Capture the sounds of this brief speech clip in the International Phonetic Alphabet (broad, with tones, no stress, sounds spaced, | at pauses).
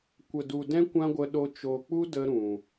kʷ ə˨ d u˨ d ɛ̃˦ kʷ ã˦ ɡʷ ə˧ ɗ o˧ t͡ʃ o˨ k͡p u˦ d ə˦ ɾ ũ˨